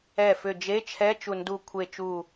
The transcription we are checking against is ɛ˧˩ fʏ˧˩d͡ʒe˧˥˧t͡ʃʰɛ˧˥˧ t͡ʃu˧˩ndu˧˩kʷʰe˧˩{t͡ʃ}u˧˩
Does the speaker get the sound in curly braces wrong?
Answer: no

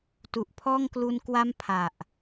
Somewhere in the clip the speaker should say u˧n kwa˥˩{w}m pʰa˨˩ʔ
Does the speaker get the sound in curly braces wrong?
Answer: yes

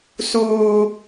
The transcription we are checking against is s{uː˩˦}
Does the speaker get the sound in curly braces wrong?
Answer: yes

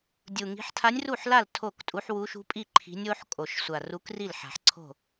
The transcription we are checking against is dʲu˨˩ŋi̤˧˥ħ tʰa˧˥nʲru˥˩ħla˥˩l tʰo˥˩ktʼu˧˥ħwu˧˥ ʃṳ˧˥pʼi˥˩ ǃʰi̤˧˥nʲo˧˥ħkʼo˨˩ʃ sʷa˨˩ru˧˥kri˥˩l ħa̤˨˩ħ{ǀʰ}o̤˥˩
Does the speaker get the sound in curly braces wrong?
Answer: no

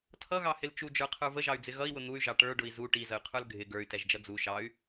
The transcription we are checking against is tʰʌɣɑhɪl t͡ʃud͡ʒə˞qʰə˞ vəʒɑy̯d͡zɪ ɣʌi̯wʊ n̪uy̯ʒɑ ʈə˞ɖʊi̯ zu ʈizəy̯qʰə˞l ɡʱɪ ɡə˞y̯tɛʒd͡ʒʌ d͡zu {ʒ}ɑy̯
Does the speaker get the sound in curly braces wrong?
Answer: yes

